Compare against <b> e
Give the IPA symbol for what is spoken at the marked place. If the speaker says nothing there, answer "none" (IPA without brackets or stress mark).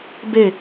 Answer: b